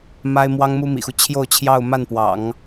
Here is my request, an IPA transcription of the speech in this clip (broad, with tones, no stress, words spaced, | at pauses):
ma˥ɪ̯mwɑ˥ŋmu˥ mḭ˨˩xu˦t͡ɕʰjo˥˧ʊ̯t͡ɕʰjɑ˥˧ʊ̯ ma˥˩npwɑ̰˨˩˦ŋ